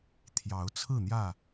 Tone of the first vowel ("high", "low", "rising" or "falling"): rising